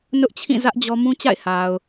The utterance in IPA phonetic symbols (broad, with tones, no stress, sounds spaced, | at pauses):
n ʊ˦ ʔ t͡ɕʰ ĩ˦˨ z ä˦ ʔ d͡ʑ ɔ˦ m ũ˦ t͡ɕ a̰˦˨ ɪ̯ h a˨ ʊ̯